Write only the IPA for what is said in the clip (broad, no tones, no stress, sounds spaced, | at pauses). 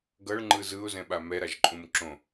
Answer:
ɡ ʌ ɭ ŋ͡ǃ ɯ z ɯ ʊ̯ z ɛ̃ ɓ a m ɛ ɾ a ʒ ǃʼ ũ m ǁ õ